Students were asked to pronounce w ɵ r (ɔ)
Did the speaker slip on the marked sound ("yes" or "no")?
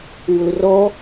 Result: no